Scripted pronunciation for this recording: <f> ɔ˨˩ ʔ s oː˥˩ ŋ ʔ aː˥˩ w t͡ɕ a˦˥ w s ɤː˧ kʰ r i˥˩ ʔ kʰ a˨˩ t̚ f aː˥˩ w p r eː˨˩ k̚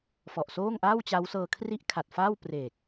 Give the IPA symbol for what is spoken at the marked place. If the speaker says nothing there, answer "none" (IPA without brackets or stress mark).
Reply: f